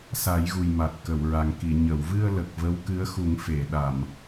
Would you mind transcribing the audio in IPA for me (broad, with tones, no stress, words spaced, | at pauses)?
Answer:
sa˨˩˦jɣu˨˩j ma˨˩t̚kə˨˩˨wɹa˨˩ŋki˨˩˨ ɲə˨˩˨wvɨ˧ə̯lə˨˩k̚ və˧˥wkɨ˧˥ə̯xu˨˩˦ŋ fe˨˩˨ ɗa˨˩˨m